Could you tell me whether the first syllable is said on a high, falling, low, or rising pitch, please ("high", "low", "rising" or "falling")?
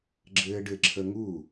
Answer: high